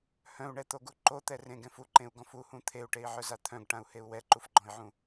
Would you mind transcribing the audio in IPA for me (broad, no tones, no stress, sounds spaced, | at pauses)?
h œ̃ u̯ ɳ ɛ t̪ o ɡ u ǃ o t̪ ɛ r ẽ ɡ ɛ̃ f u ǃ ẽ u̯ ɡ ɔ̃ f u h ũ t̪ʰ e u̯ ʈ e i̯ ʕ œ z a t̪ʰ œ̃ ɡ ʈ ã u̯ h e u̯ w ɛ ǃ u f ɡ͡ǃ ɔ̃ i̯ ʕ ũ